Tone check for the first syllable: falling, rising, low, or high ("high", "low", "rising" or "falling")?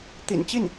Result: low